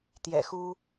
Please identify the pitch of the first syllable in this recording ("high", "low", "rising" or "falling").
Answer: low